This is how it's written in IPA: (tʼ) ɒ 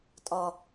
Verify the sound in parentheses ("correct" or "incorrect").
correct